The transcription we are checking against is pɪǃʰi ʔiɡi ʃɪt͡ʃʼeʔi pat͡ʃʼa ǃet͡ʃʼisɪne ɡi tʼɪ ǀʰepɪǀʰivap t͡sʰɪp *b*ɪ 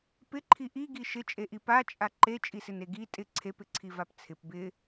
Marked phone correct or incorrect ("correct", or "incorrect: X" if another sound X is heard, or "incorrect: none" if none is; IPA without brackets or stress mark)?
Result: correct